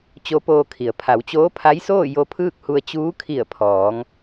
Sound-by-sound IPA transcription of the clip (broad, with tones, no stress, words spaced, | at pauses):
t͡ɕo˧˥poː˧kʰi˩ə̯ pʰa˩˧wt͡ɕoː˧˥pʰa˧˥jsoː˥˨ jo˧˥pʰɯː˥˨k̚hu˧ə̯ t͡ɕuː˧˥kʰi˧˩ə̯pʰɔː˩˧ŋ